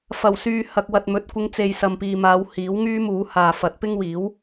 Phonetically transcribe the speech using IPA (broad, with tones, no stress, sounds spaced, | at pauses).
f ɐ˨˩ w s yː˨ h ɐ˨ k̚ w ɐ˨ t̚ m ɵ˨˥ t̚ kʷ ɪ˨˧ ŋ t͡s e˨ j s ɐ˨ m p iː˨ m aː˨˧ w h iː˨˥ w ŋ yː˥ m uː˨˧ h aː˨ f ɐ˨˥ t̚ p ɪ˥ ŋ w iː˨˥ w